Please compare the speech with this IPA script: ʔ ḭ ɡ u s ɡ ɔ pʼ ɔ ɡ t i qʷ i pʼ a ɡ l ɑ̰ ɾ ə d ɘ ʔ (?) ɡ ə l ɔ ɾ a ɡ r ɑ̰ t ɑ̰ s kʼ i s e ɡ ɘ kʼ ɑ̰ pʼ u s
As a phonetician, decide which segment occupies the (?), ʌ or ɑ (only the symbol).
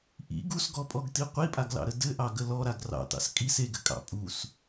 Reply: ɑ